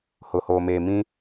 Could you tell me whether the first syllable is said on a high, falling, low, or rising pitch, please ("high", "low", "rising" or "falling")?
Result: low